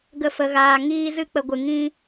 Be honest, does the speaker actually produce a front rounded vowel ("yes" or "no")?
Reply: no